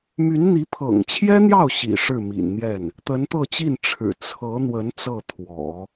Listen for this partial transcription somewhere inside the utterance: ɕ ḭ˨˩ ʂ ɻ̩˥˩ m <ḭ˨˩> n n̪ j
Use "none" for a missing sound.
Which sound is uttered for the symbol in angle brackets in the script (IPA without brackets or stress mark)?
ḭ˨˩